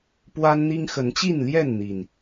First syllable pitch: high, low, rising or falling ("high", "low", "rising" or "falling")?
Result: high